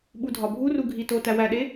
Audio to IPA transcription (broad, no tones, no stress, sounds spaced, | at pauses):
ɓ u dʱ ɒ bʱ u r u ɡʱ i t o t æ w æ ɗ e